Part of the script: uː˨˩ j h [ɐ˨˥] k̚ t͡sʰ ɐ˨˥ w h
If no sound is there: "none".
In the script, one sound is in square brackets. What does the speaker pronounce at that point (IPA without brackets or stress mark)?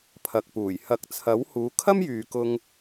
ɐ˨˥